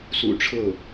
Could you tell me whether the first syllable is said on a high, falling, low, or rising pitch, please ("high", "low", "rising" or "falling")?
low